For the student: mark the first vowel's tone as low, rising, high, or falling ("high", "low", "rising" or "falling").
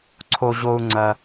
high